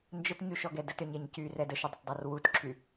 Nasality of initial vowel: oral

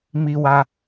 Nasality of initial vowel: oral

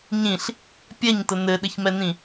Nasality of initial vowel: nasal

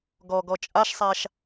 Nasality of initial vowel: oral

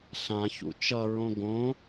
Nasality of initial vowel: nasal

